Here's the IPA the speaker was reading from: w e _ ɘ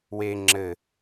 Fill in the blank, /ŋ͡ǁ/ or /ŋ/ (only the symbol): ŋ͡ǁ